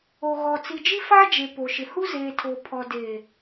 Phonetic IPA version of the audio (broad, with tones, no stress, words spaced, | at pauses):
o˨ɣɔ˨ t͡si˨d͡ʒi˦faː˦d͡ʒe˨ po˨ʃɪ˨hu˦ zeː˨tʰoː˨ pʰɔ˨deː˨